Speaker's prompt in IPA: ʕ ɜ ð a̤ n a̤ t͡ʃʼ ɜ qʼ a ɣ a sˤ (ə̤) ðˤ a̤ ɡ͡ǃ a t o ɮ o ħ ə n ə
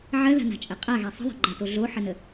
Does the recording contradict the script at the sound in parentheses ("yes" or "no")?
no